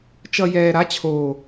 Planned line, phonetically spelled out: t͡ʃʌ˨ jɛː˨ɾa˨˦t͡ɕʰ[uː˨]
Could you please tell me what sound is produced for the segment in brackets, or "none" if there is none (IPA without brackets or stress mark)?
oː˨